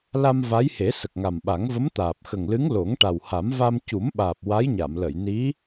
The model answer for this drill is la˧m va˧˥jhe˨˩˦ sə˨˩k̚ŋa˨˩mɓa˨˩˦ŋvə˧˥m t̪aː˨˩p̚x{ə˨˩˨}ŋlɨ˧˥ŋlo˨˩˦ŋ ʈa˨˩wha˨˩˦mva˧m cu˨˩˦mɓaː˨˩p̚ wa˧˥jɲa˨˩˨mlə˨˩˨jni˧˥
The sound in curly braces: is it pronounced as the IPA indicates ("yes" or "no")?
no